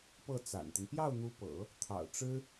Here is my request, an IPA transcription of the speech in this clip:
p ɤ˥˩ t͡s a̰˨˩ n t̪ ə˦ n p j ɑ˥˩ ʊ̯ n̪ u˧˥ p ɤ̰˨˩˦ | t̪ʰ ɑ̰˨˩ ʊ̯ ʈ͡ʂ ɻ̩˥

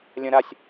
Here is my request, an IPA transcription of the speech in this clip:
lʲ ɐ̃ ɾ a sʲ

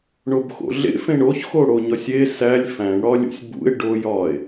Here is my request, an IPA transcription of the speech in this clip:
ɳ o b x o̰ ɮ ḛ f ẽ ɳ o ç x o ɽ o ɲ ɒ sʲ e s æ lʲ f æ̃ ɳ ɽ ɒ lʲ ṵ sʲ b ṵ e̯ ɖ o j ɒ e̯

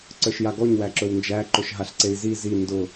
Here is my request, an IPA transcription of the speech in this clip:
ǀ ə˞ ʃ j a ɡ ɔ ɲ w æ ǁ ɵ w n d͡ʒ æ ǃ ɵ ʃ ɦ a ɬ ǀ e i̯ z i z i n d ʊ

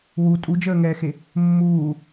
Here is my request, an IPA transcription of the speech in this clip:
w u tʼ u d͡ʒ əː ŋ ɛː x e | mː uː

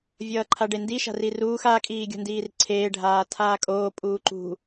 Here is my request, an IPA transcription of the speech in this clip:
vʲ ʌː ǃʰ a ɖ e n d i ʃ a̤ r i r uː x a kʼ iː ɡʲ o̤ n d iː r ǀʰ eː ɖʱ aː tʰ aː kʼ oː pʼ uː ǃ ṳ

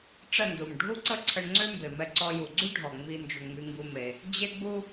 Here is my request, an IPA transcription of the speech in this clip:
ʈ͡ʂ ə˦˨ n d u˨ m ɖʱ u˦ ǀ ə˦ ǀʰ ə˧ ɳ ŋ͡ǀ ø˦ m b e˨ m ɛ˧ ǀ ɔ˦ j u˧ ɡ͡ǀ y˦ ɖʱ ɔ˨ ŋ͡m i˧ n d͡ʒ u˨ ɳ ŋ͡m y˧ ŋ ɡ u˦ m e˧ | d͡ʑ e˦ ɡ͡b u˦

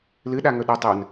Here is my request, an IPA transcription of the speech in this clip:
l ɨ ɗ a ŋ ɵ ɗ ɵ tˤ ɵ n

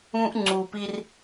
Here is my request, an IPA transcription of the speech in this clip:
ũ˦ ʔ ŋ͡ǀ u˨ p i˦ r

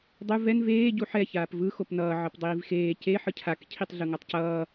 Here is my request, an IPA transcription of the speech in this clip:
dˤ u v ɛ n v eː ɟ u ħ ɛ ç aː p v ɯ x o p n ʌː ʕ ʌ p dˤ iː v x eː c e ħ ɯ cʰ a k cʰ i tˤ ɮ ɯ ŋ a tˤ c ʌː

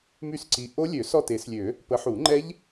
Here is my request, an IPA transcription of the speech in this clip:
m y˦˨ s ǀ i˨˦ ʔ o˦˥ lʲ ø˨˩˦ s ɔ˦˨ t e˨˩˦ s lʲ ø˨˩˦ | p ə˨˦ ħ u˨˩˦ ŋ͡ǃ ɛ˦˥ ʎ

